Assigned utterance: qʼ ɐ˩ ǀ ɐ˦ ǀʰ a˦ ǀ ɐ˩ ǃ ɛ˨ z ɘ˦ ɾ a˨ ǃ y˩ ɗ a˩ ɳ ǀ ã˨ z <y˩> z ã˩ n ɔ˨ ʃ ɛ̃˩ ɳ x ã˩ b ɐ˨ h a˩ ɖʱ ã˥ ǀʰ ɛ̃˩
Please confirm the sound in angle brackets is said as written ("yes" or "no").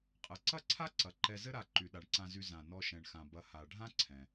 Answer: no